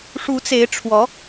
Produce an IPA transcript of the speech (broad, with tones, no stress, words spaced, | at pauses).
ʂu˧˥t͡se˧˥ɪ̯ ʈ͡ʂʰwɔ˧˥